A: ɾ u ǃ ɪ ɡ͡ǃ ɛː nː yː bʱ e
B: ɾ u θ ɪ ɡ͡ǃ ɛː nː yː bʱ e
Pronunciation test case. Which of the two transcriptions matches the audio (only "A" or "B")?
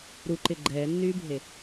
A